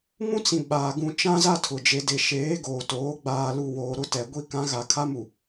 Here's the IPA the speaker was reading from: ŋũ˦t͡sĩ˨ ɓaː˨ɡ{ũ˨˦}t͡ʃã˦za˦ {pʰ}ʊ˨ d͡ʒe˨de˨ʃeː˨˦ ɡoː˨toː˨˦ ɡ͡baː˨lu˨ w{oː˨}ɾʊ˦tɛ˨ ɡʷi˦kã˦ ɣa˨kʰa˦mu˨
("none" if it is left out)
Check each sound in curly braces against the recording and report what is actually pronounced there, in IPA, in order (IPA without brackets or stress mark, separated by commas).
ũ˨, tʰ, oː˨